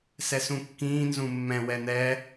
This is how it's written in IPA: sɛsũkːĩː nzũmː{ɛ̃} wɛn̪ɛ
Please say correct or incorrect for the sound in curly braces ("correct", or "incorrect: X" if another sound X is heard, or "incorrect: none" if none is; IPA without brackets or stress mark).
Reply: correct